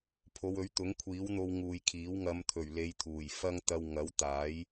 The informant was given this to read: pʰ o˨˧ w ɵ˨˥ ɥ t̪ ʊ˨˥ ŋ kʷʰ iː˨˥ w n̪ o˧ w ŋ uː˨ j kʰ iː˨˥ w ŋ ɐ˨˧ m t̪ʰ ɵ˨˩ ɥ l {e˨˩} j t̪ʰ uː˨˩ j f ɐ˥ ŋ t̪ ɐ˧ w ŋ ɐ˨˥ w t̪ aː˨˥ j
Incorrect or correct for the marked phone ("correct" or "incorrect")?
incorrect